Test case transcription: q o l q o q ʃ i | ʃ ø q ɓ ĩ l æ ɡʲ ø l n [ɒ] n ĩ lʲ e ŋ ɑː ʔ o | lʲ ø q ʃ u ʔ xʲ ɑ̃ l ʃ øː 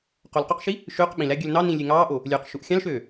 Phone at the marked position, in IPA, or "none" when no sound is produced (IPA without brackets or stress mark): ɑ